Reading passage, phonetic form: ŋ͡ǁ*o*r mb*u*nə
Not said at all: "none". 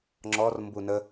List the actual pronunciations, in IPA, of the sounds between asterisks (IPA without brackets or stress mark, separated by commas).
ɔ, u